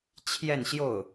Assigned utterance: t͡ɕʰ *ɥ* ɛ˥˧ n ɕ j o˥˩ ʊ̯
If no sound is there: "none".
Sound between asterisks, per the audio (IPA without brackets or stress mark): j